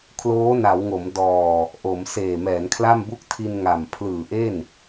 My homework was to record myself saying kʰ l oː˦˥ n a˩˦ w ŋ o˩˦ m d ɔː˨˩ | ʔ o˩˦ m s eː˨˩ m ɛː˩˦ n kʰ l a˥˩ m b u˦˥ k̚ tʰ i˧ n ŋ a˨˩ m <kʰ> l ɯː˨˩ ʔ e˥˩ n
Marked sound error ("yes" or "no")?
yes